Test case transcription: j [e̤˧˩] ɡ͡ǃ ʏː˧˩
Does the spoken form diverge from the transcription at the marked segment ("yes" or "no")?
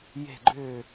no